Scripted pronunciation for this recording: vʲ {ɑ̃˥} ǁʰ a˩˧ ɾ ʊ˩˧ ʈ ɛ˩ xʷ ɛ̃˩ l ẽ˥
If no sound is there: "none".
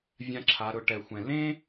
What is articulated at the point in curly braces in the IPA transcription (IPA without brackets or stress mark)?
ã˥